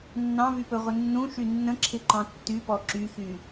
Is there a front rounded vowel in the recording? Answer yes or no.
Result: yes